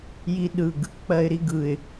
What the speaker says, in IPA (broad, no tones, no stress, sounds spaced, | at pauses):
j i ɗ ɯ ɡ | k͡p ɜ ɪ̯ ɾ i ɡ ɯ ɪ̯